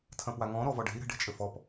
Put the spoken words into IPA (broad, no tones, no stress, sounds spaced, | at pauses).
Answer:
tʰ ɐ̃ p w a ŋ ɔ̃ ɾ ɔ v ɔ ɖ ɛ̤ i̯ ɾ ɛ̤ ɖ e̤ t͡ʃʼ ɘ f ɔ p